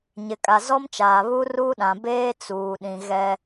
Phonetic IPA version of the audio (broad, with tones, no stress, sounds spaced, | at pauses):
ɲ ɪ˨ kʼ a˨ z ɔ˦ m t͡ʃ aː˨ β u˦ r u˦ ɗ ã˨ b eː˦ t͡s uː˨ ɗ ĩ˨ ɣ ɛ˦